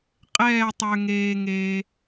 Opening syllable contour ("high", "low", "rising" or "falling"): falling